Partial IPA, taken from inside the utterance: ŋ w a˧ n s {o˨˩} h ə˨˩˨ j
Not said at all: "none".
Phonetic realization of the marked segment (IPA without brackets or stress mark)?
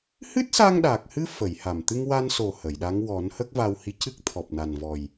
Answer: o˨˩